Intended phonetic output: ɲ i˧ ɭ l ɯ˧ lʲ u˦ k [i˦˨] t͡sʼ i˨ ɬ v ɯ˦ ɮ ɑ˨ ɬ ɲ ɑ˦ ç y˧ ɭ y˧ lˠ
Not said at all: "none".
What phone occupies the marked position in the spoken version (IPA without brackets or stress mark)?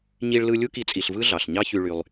i˧